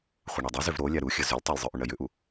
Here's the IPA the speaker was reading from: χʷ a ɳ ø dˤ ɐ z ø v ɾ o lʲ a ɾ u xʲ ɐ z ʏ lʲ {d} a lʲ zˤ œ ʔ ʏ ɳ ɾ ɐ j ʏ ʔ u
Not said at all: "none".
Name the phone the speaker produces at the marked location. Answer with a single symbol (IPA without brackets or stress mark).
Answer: tˤ